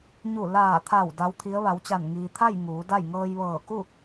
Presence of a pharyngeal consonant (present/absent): absent